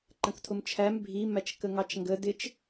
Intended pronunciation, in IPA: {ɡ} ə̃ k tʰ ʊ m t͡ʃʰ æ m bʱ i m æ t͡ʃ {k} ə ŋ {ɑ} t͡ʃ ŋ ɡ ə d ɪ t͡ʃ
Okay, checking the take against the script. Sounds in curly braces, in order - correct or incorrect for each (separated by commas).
incorrect, correct, correct